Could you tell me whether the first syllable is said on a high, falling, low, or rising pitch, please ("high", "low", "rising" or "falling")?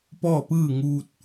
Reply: falling